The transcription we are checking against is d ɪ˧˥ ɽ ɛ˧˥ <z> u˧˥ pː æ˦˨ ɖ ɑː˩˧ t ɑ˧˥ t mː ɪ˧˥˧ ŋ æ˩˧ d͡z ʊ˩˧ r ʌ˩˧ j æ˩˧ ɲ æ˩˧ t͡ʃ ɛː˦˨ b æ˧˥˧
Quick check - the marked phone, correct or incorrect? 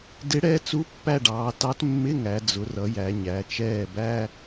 incorrect